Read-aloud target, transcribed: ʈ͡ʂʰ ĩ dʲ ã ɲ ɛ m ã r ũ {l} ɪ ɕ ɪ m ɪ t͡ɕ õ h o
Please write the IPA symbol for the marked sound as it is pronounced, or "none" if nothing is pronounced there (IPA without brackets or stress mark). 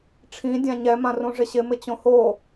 ʐ